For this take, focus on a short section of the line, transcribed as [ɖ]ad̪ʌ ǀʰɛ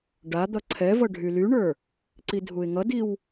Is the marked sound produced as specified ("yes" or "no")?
yes